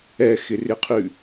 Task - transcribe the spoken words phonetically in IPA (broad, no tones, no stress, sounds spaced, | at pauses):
ɛ x ɪ r ɪ qʰ ʉ